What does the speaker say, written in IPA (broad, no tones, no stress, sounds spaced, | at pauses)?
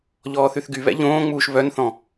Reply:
ʎ ɔː θ y θ ɡ y β ɛ̰ ʎ õː ŋ͡m uː ʃ β œ n θ ɔ̃